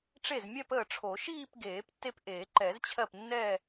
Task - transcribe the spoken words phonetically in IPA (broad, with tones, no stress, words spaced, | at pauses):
ʈ͡ʂe˥˩zmʲɛ˥˧p əː˥˩ʈ͡ʂʰo˨˩˦ ʃiː˥˧pɡeː˨˩˦p tːe˥˧pʔeː˨˩˦ ǃɛ˨˩˦zt͡ɕʰɜ˥˩pnːɛ˥˧